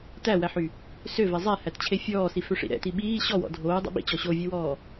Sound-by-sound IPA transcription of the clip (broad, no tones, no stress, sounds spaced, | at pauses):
t æ w æ ħ y | s ø v ɛ zˤ ɛ h æ t t͡ɕʰ e fʲ ɔː s i f ø ʂ ḭ ɾ ɛ̰ t i ɓ iː ɕ ɔ w ɔ̰ dʱ oː dˤ ḭ ɓ ḭ t͡ɕ ɔ ɕ o vʲ ɛ w ɔː